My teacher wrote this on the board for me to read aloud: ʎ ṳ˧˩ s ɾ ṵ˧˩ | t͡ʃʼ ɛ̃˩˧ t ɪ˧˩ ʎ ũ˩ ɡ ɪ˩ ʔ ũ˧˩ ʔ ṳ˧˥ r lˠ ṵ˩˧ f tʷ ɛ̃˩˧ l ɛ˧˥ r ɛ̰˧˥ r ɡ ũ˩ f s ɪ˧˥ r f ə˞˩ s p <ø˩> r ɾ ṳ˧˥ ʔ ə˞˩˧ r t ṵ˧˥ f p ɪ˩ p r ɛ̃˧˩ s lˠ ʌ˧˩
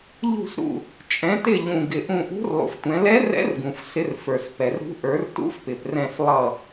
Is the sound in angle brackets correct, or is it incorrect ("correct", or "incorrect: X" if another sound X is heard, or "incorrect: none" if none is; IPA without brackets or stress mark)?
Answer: incorrect: ɛ˩